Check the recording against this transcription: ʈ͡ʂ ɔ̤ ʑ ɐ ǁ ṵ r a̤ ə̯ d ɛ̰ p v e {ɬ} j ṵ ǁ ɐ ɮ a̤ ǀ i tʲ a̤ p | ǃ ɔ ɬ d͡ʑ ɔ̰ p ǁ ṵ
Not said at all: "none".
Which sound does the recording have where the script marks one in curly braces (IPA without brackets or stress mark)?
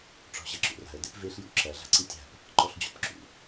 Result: ɬ